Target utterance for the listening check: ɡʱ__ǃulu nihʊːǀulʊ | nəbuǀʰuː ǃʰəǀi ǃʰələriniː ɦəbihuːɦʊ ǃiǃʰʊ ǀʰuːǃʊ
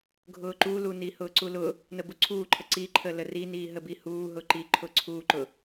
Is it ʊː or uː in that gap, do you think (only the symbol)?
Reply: ʊː